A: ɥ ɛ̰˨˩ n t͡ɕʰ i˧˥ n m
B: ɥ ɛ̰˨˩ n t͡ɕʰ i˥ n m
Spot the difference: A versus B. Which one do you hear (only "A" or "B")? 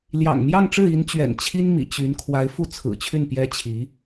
B